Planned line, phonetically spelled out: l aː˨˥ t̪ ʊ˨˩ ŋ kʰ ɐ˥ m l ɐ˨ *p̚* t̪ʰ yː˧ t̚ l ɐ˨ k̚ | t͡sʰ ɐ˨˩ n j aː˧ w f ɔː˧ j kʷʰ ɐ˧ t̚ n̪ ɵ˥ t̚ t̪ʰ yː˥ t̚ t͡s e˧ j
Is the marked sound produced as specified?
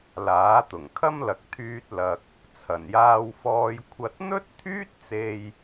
no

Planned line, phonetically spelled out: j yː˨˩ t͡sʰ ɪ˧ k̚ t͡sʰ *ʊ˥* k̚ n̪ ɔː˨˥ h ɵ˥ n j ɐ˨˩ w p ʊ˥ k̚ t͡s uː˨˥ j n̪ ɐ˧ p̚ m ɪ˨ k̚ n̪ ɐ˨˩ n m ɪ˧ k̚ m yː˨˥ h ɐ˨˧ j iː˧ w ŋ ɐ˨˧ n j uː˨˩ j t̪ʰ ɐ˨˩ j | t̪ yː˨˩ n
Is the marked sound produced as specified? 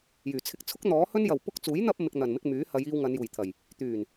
yes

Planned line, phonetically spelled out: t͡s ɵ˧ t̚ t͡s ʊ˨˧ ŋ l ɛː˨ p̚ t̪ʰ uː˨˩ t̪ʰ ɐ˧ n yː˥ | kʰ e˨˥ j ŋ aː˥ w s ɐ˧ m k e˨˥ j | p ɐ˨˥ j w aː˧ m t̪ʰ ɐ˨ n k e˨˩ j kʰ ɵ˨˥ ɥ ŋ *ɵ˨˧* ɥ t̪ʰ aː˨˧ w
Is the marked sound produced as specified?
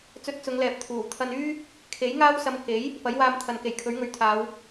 yes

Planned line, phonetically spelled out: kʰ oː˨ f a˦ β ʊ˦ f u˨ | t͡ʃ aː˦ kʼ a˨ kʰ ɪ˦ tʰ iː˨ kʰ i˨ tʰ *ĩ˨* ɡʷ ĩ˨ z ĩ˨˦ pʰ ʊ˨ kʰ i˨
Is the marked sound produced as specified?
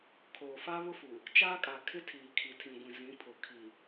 yes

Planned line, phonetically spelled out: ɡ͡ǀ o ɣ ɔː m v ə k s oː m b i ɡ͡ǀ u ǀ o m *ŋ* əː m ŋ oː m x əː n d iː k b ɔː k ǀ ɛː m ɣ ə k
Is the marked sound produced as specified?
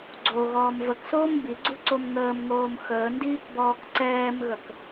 yes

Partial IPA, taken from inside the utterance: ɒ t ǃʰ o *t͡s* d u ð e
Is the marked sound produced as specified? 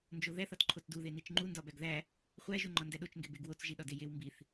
yes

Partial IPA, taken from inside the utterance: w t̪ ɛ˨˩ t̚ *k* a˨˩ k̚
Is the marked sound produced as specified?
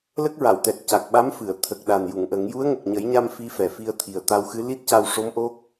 no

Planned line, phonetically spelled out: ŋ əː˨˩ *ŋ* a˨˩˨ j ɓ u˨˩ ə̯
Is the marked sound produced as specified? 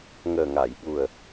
yes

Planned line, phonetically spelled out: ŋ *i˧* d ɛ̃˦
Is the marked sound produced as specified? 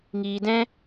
no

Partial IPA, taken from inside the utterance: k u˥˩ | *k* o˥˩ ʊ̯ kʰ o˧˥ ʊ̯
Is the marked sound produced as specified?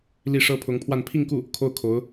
no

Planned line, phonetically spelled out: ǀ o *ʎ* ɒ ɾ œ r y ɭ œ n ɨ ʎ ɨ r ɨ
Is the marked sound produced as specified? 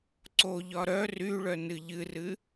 yes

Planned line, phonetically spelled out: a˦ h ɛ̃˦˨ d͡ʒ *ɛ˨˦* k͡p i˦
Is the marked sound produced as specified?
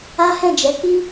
yes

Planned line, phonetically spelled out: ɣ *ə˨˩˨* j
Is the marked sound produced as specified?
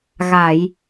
no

